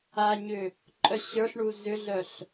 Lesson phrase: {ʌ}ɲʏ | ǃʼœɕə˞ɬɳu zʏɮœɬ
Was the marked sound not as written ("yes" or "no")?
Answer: yes